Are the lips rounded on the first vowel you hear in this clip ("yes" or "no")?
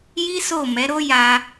no